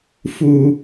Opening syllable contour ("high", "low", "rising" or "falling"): high